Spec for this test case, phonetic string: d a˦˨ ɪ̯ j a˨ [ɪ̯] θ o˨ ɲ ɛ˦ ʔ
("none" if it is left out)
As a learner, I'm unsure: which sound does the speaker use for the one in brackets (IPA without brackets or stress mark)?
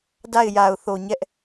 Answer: ʊ̯